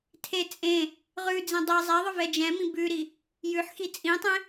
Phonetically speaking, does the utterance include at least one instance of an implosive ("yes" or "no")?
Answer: no